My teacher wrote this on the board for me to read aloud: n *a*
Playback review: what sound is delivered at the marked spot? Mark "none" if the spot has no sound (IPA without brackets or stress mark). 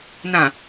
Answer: ã